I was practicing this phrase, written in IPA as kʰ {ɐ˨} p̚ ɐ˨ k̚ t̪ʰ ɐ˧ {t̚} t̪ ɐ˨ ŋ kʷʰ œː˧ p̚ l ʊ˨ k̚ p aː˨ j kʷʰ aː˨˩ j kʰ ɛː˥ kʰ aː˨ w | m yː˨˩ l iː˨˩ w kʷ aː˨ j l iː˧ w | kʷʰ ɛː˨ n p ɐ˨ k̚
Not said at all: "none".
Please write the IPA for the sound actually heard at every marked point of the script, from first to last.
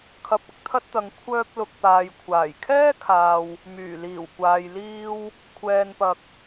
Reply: ɐ˨, t̚

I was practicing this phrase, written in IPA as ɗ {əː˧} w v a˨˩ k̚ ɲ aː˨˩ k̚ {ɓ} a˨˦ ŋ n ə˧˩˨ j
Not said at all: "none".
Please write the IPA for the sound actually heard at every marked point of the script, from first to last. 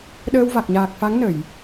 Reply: əː˧, f

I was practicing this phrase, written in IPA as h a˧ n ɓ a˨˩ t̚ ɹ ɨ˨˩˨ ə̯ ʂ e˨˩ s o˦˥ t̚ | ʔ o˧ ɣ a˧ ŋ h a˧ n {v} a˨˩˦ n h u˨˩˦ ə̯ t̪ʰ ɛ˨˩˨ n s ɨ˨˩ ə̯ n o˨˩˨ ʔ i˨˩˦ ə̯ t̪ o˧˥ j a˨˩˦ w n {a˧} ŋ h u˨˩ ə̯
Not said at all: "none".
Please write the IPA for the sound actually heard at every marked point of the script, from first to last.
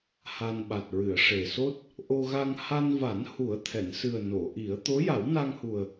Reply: v, a˧

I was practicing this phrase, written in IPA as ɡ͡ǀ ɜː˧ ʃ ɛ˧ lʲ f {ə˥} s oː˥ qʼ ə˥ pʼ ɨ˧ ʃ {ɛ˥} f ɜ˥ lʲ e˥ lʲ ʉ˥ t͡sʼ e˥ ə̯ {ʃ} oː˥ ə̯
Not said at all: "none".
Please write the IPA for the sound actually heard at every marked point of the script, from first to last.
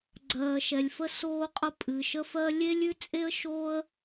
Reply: ə˥, ə˥, ʃ

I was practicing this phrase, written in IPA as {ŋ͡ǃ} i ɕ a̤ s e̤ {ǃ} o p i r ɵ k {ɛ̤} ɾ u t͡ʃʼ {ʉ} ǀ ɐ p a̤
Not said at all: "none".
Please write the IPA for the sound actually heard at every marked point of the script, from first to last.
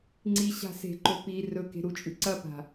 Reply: ŋ͡ǀ, ǃ, e̤, ʉ

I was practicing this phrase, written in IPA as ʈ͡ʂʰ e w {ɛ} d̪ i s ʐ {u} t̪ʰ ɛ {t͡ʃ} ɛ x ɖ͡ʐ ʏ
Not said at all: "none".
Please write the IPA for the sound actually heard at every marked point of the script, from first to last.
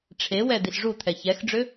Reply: ɛ, u, ç

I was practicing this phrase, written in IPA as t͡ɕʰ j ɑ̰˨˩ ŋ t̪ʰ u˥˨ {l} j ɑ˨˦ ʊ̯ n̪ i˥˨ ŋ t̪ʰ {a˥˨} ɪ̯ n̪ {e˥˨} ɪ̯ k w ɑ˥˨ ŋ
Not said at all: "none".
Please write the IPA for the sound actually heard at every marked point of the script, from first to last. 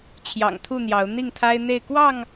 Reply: n̪, a˦, e˥˨

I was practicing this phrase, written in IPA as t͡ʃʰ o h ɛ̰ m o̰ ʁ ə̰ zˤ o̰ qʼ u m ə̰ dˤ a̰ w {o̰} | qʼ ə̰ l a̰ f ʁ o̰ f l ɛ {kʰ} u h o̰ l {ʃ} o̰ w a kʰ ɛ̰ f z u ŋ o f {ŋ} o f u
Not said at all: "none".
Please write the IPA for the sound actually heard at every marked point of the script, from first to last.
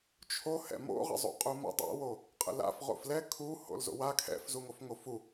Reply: o, kʰ, z, ŋ

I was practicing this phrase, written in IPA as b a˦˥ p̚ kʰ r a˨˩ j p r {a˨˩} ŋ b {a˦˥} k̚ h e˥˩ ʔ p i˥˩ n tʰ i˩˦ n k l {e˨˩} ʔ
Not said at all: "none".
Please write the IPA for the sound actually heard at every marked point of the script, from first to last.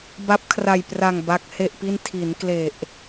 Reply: a˨˩, a˦˥, e˨˩

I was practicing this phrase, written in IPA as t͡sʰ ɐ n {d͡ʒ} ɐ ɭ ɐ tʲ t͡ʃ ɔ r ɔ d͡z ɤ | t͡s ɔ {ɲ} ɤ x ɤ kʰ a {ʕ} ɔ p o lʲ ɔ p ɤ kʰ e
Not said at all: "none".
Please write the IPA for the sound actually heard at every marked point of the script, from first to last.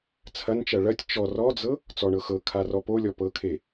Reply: t͡ʃ, ɳ, r

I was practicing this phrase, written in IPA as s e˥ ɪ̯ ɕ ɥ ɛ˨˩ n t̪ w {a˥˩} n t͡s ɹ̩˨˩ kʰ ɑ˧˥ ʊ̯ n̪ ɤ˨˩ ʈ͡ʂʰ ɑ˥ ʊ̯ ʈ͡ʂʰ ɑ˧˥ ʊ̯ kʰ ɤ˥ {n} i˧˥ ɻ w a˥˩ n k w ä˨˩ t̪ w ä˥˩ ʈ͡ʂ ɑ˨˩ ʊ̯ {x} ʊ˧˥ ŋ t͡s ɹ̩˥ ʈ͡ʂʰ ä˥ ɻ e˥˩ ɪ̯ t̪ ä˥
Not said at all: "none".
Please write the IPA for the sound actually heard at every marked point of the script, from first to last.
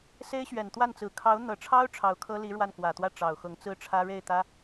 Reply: a˥˩, l, x

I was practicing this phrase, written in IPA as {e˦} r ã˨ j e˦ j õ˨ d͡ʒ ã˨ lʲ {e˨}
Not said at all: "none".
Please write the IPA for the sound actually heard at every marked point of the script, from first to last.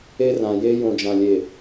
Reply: e˦, e˨

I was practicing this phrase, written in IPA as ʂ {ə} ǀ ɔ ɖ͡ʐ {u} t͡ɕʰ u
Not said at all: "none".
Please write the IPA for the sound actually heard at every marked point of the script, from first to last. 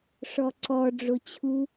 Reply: ɔ, o

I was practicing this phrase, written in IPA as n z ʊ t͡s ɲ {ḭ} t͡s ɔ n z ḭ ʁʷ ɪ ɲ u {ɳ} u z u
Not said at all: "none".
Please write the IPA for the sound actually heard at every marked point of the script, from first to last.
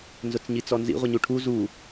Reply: i, ʈʰ

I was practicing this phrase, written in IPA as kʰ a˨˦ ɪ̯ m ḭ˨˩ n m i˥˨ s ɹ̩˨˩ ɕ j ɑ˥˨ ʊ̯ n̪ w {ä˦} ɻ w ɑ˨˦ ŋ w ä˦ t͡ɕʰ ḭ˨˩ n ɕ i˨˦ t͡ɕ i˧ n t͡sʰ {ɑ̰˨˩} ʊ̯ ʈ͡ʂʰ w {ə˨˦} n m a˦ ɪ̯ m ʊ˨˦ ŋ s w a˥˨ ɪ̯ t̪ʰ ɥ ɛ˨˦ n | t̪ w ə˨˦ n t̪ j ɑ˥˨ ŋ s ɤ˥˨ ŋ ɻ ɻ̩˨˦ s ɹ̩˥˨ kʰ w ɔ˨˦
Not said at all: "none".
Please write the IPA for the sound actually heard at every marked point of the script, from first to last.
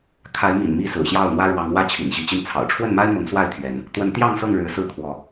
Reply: ä˦, ɑ̰˨˩, ə˥˨

